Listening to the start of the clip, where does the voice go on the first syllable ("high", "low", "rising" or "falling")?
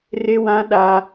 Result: high